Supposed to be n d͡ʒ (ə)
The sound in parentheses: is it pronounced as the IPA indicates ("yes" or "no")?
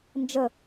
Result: yes